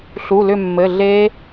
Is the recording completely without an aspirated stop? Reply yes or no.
yes